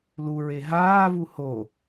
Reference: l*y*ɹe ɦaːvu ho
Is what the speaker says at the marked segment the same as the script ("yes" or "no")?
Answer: no